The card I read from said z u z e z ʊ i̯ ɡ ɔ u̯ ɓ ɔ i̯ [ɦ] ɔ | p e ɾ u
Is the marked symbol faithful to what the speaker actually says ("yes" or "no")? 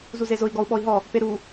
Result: yes